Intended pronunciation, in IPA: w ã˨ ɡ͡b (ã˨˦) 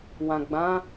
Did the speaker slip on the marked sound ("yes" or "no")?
no